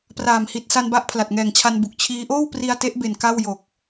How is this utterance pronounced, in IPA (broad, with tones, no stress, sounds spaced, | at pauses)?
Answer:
p r aː˨˩ m h i˨˩ t̚ s a˧ n b a˦˥ ʔ pʰ l a˨˩ t̚ ŋ ɛː˨˩ ŋ t͡ɕʰ a˧ n b u˨˩ k̚ t͡ɕʰ iː˦˥ ʔ oː˥˩ w p r i˧ a̯ t e˦˥ ʔ b e˨˩ n k a˥˩ w j o˨˩ k̚